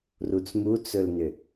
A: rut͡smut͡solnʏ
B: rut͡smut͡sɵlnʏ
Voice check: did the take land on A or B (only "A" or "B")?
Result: B